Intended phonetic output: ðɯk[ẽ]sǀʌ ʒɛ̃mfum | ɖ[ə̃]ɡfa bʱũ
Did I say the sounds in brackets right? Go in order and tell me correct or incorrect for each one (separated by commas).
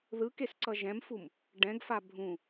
incorrect, incorrect